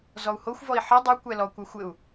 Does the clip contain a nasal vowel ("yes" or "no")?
no